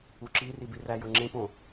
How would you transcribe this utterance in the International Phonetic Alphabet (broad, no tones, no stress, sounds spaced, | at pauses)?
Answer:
u ǁ i r i b i r æ j o ŋ͡ǁ ẽ p õ